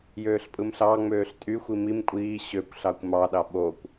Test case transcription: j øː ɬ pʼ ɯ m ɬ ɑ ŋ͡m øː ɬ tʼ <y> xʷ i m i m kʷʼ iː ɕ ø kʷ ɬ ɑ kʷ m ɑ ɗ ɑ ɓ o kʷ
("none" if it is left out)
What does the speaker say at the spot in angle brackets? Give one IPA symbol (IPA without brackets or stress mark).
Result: y